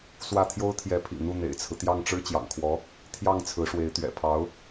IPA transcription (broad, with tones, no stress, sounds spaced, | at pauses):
s w ä˥˩ t̪ʰ j o˥ ʊ̯ t̪ʰ j ɛ˧˥ pʰ ḭ˨˩ n̪ u˥˩ n̪ ḛ˨˩ ɪ̯ t͡sʰ ɹ̩˦ t̪ j ɑ˥˩ ŋ ʈ͡ʂ ɻ̩˥ t͡ɕ j ɑ̰˨˩ ŋ kʰ w ɔ˧˥ | t̪ʰ j ɑ˥˩ ŋ t͡sʰ ɹ̩˧˥ ʂ w e˧˥ ɪ̯ t̪ ɥ ɛ̰˨˩ pʰ ɑ˧˥ ʊ̯